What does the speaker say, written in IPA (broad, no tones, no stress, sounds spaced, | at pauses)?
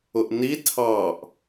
ʊ ʔ n i tʰ ɑ ʔ